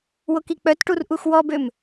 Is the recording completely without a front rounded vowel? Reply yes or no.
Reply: no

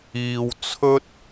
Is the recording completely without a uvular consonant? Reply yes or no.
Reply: yes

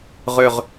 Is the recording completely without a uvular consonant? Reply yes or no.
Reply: no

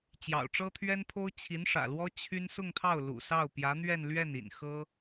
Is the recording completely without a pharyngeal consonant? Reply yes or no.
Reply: yes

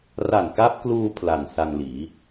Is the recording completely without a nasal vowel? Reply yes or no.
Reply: yes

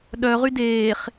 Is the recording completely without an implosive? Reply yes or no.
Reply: no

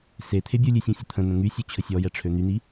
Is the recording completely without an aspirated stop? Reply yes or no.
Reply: no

